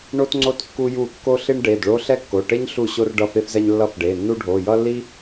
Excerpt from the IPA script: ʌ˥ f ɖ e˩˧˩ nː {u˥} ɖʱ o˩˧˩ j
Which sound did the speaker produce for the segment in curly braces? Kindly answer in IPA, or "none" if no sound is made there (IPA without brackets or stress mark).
u˥